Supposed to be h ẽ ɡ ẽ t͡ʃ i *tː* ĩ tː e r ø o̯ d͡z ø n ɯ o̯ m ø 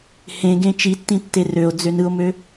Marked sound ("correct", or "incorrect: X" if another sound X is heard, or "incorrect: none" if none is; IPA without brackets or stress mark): correct